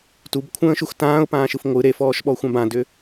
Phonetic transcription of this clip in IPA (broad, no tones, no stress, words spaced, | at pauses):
tubkʷʰə̃ːʃux tãːʊ̯pãːʃɯf ŋʷɯ ɾefɔːʃɓɔxʷãb ãdʏ